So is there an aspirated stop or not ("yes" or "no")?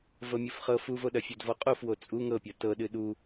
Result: no